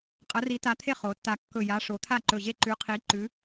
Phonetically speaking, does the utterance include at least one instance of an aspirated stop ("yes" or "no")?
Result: yes